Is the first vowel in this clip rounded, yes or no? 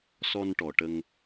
yes